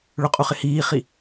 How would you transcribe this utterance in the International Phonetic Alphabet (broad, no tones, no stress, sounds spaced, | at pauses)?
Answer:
ɭ ʊ qʼ u χ ɪ h iː χ i